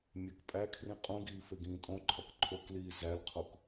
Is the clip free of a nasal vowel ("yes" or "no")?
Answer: no